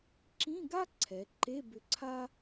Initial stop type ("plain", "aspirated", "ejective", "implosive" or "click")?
click